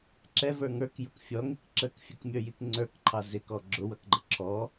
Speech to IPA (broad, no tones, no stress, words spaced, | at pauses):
ǁɛvə˞ ŋə˞kjʊk fʲɔŋik ǁəkfʲəkmʲə˞jik ŋ͡ǀə˞kǃʰɑ zɪkɔ ɡ͡ǁʊwʌkɡ͡ǃə ǁʰɔ